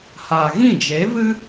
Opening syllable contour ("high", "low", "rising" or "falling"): low